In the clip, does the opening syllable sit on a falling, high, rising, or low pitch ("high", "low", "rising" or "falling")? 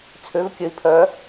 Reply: rising